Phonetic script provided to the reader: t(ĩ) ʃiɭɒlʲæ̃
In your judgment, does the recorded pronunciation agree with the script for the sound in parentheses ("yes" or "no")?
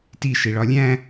no